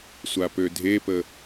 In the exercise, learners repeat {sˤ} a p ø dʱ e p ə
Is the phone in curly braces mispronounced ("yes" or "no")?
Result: yes